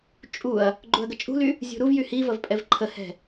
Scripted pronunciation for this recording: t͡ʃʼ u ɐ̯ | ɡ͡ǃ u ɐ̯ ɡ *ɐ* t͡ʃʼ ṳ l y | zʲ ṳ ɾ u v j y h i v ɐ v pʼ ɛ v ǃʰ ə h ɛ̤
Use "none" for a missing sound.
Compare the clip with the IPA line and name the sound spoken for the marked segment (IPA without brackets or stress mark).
ə